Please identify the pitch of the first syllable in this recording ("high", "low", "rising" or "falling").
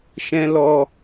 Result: high